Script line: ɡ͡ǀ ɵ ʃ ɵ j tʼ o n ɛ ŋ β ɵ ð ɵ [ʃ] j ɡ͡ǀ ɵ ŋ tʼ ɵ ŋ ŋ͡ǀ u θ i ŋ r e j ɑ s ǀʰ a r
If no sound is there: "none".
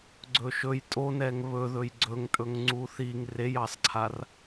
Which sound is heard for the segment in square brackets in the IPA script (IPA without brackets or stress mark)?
none